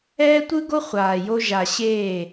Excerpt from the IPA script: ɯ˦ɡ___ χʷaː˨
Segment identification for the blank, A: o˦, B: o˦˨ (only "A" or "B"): A